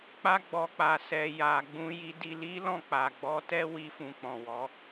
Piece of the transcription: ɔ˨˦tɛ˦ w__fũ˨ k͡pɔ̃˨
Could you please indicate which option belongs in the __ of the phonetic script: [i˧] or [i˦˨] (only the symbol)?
i˧